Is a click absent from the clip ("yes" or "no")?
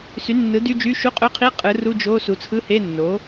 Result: yes